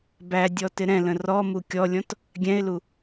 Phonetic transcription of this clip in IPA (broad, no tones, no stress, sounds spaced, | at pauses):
b æ dʲ ɔ t ɪ ɾ ɛ̃ l ə̃ r ɔ m u kʲ ɔ lʲ ɔ̃ t | ɡʲ ɛ̃ ɪ̯ l u